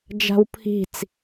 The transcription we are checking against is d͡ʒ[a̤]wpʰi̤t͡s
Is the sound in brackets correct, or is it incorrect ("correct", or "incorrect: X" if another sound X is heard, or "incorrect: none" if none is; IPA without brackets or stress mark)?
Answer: correct